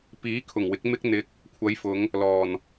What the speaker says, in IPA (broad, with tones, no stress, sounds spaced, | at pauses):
p iː˨˥ kʰ ʊ˨˩ ŋ w ɪ˨˥ k̚ m ɪ˥ k̚ n̪ ɪ˧ k̚ | kʷʰ ɐ˨˧ j f ʊ˨˧ ŋ | l ɔː˨˩ n